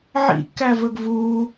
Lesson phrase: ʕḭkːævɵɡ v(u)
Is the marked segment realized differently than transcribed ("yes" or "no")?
no